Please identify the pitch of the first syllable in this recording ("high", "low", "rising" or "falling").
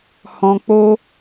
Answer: low